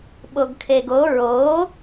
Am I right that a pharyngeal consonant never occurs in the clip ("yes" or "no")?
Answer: yes